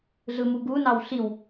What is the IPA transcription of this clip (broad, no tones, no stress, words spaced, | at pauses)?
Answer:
ɮɯmuɡunɑw ɬiw